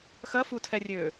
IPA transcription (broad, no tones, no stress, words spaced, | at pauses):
xɐfutʰɛrʲøː